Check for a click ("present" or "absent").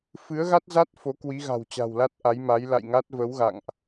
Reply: absent